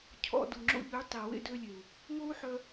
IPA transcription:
cʰ ɔ̰˧ d u˨ ŋ͡ǁ o̰˧ ʎ y˨˦ tˤ i˨ w ḛ˧ d ø˧ lʲ e˨ u̯ | ŋ o˦ u̯ ħ œ˧

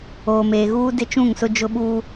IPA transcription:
oː˨ m eː˨ ɣ uː˦ d ɪ˦ t͡ʃ ũ˦˨ ŋ s ʊ˦ d͡ʒ ʊ˦ ɓ uː˦

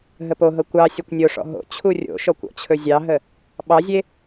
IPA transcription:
ɦ ə p o ɦ ɤ kʷ ɑ sʲ ɤ kʷ nʲ o ʂ ɔ̰ ɦ o̰ t͡ɕʰ u rʲ o̰ ʃ ɔ kʷ ɔ̰ t͡ɕʰ ɵ zʲ ɑ ɦ ə | ɓ ɑ zʲ e

